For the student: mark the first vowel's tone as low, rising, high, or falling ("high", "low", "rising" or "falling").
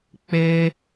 high